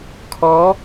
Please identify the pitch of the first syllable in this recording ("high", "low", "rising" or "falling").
rising